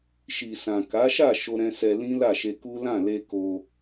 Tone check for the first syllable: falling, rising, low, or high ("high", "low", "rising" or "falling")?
low